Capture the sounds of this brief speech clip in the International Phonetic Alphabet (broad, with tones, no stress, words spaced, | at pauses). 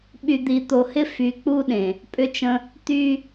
ɓy˨d̪i˨t̪o˨hɪ˦ fy˨k͡pu˦ɗẽ˨ | pʼʏ˦t͡ʃə̃˦ | t̪y˦